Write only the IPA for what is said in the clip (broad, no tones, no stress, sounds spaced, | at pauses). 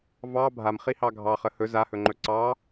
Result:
v ɑ bʱ a m χ i h ɑ ɡʱ ɑ χ ə h ɵ z a h ɵ ŋ͡ǃ ɵ ǀ ɑ